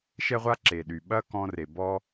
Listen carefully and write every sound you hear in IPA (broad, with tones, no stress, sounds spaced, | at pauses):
ʃ ɛ˥ ʁʷ a˥ ǁ e˩ ɗ y˩ ɓ ɐ˥ k ɔ̃˧ r e˩ b ɔ˧